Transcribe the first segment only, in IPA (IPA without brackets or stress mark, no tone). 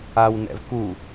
a